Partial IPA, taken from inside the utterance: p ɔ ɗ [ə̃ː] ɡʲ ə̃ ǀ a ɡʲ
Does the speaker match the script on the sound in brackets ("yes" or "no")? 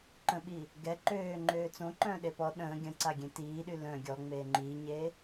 yes